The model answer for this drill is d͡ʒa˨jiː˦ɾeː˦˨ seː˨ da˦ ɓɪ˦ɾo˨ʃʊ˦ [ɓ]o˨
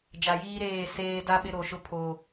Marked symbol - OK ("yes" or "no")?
no